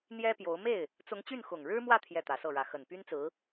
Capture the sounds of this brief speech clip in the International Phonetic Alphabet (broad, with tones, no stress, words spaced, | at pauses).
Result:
n̪jɛ˥pjo˧˥ʊ̯ me˥˩ɪ̯ | t͡sʊ˧˥ŋ t͡ɕy˥˩nxʊ˨˩ŋɻɻ̩˥mwä˥˧ t̪ʰjɛ˥˩t̪ä˧˥sɤ˥˩ɻä˧˥ xə˨˩npy˥nt͡sɹ̩˧˥